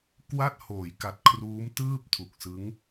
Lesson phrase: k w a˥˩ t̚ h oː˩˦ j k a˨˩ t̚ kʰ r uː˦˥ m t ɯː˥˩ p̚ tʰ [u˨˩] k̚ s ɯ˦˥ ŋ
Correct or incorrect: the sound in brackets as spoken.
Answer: correct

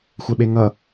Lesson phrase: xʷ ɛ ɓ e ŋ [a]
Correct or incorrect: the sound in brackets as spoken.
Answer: incorrect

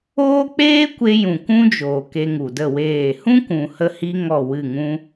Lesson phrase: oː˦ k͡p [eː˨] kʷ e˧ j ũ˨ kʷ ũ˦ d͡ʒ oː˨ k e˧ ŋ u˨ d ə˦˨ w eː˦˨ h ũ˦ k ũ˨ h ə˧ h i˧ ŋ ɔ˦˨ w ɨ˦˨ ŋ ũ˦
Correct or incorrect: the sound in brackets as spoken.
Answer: incorrect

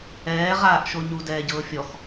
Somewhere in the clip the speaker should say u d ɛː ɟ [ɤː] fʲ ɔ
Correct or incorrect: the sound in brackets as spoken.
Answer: correct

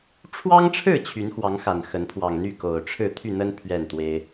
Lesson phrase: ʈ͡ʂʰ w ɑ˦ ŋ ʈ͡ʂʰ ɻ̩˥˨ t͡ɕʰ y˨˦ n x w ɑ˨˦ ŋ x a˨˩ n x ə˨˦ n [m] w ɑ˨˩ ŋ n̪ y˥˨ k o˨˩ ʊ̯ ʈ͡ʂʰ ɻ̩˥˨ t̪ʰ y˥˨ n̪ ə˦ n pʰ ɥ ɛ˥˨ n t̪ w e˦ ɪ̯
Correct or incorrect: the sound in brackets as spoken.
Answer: incorrect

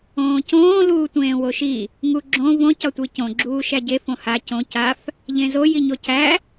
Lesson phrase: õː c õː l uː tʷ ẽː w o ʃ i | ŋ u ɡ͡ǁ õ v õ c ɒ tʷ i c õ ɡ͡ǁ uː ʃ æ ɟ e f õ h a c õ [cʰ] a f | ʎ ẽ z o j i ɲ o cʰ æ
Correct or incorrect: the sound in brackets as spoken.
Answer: incorrect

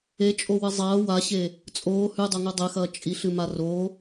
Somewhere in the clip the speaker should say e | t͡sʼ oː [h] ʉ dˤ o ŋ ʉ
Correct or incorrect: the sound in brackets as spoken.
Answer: correct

